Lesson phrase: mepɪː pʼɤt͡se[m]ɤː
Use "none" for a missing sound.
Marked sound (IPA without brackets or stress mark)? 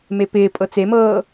m